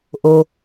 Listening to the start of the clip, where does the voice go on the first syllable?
low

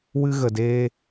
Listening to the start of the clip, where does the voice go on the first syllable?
high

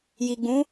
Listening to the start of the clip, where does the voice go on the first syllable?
low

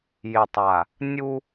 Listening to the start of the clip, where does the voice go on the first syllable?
low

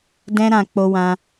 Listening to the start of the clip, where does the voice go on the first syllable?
high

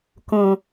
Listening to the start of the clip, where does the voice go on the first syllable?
low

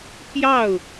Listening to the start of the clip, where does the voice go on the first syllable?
falling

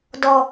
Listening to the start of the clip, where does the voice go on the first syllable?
high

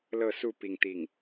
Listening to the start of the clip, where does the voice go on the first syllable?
falling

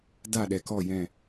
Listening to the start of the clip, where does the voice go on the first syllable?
falling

